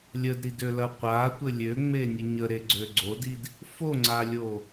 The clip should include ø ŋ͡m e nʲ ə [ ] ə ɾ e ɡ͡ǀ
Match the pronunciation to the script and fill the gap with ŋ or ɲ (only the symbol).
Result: ɲ